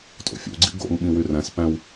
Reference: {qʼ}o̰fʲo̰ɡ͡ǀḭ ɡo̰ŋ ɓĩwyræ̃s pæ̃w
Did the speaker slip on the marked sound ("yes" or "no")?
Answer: yes